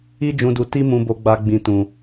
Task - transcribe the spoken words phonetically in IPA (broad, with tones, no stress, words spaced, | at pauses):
i˧d͡ʒũ˨du˨ ti˧ mũ˨bo˨ɡ͡ba˨ ɡ͡bĩ˨ tũ˨